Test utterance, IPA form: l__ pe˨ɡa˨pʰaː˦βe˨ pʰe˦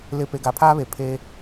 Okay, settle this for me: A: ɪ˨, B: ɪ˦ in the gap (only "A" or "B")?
A